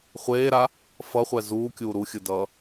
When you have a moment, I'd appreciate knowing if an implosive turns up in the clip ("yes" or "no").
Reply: no